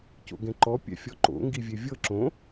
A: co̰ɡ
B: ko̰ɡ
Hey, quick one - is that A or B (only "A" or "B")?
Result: A